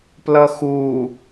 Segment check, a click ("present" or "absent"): absent